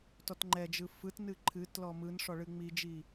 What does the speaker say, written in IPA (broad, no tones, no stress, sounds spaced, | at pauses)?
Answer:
t ɔ t ŋ͡ǃ ɛ d͡ʒ ɯ f ɯ t n ɨ ǃʰ ɨ t l ɔ m ɯ n ʂ ɔ ɭ ɨ ŋ͡m i d͡ʒ i